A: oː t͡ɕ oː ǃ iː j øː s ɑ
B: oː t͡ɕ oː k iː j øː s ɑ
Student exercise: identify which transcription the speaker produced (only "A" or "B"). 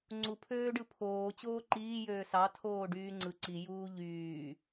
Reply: A